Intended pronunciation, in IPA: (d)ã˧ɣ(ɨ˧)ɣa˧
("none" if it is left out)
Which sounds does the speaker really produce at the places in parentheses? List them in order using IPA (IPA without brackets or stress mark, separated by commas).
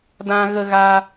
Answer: d, ə˧